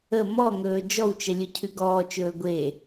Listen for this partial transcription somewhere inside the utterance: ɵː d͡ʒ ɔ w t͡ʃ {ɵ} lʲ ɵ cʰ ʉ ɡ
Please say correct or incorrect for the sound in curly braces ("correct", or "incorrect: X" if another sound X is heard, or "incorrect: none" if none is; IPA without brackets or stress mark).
incorrect: ə